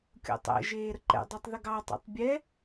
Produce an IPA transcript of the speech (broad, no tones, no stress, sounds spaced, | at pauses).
kʲ o̰ tˤ ɛ̰ ʒ eː ɾ ə ǃ ɛ̰ dˤ ə˞ tˤ ð ə ɡ ɑ tˤ o̰ tˤ bʲ ɛ